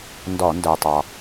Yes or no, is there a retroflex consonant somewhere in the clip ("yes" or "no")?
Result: no